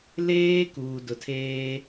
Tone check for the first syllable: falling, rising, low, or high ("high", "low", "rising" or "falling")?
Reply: high